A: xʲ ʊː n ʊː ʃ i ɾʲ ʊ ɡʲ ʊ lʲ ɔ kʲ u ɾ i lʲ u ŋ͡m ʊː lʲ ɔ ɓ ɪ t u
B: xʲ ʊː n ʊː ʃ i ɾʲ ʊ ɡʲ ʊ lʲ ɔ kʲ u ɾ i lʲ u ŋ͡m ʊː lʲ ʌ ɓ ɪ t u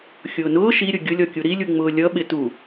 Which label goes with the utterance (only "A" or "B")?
B